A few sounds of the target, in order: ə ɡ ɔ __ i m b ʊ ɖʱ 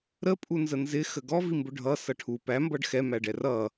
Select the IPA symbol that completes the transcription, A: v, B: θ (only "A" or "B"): A